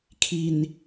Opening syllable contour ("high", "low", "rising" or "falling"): low